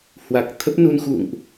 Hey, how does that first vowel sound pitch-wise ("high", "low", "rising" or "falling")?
low